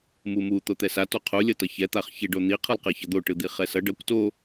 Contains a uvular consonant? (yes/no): yes